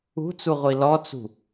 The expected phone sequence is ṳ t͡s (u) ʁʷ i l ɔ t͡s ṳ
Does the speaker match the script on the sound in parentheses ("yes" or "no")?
yes